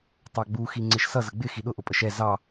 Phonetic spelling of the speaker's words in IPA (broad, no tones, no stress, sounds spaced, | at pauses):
tˤ ɑ ɡ͡b u x i ŋ͡ǀ ɪ ʃ s ʌ z ə ɡ͡b ɪ x i ɗ ʊ ʔ ʊ pʼ ə ʃ ɛ z ɑ